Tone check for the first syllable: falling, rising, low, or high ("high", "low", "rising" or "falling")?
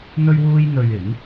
high